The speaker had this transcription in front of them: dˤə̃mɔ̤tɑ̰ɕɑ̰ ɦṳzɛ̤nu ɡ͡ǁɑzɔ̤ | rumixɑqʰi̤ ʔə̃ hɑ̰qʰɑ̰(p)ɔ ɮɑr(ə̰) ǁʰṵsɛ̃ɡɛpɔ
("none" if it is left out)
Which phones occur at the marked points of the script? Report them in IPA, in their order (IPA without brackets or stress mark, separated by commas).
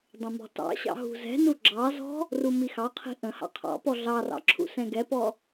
p, ɑ̰